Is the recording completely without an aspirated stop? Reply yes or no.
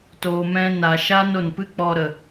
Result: yes